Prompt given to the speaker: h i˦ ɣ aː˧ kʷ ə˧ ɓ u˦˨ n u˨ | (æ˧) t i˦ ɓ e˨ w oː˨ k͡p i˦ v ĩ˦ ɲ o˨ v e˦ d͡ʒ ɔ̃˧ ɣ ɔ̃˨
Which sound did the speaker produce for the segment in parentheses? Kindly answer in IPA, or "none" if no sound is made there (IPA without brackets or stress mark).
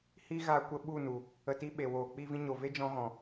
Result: ə˧